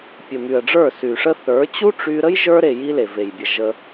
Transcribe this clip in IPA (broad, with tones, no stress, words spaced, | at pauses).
pʲə˨my˨ə̯ɖ͡ʐə˞˦˨ sy˨ʂə˦θə˞˨˦ t͡ɕu˦ʈ͡ʂy˧ɾə˦j ʒə˞˧ɾe˨ ji˦le˨ve˨j bʲə˨ ʒə˧